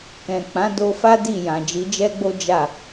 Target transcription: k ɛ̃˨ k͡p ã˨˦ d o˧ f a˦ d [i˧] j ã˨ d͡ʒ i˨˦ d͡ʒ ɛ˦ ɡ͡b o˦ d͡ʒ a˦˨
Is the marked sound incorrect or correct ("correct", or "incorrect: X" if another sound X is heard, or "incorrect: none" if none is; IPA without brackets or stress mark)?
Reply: incorrect: i˦˨